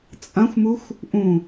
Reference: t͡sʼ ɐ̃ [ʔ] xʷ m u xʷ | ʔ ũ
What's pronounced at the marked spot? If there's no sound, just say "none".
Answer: none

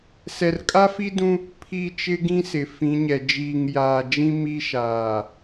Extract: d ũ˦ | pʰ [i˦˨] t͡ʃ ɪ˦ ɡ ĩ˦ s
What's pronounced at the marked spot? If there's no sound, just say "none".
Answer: i˦˨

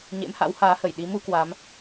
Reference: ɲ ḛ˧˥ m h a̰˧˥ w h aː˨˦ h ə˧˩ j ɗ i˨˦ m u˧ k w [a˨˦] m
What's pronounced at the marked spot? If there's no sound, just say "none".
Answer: a˨˦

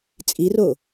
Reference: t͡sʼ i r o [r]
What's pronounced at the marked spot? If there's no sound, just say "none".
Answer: none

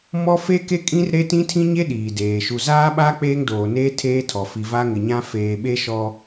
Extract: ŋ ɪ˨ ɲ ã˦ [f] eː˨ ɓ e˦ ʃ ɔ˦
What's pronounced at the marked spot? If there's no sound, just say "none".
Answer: f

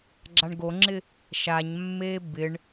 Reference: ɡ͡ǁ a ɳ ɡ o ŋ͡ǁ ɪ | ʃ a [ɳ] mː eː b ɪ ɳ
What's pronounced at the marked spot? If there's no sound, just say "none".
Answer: ɲ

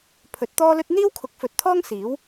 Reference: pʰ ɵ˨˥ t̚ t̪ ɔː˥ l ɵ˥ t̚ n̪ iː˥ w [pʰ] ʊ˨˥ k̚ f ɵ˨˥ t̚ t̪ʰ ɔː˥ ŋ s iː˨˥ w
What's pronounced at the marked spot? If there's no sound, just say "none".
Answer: kʰ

